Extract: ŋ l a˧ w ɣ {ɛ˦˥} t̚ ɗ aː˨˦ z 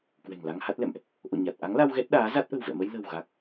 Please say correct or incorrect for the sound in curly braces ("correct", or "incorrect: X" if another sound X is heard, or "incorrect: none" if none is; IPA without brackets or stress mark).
correct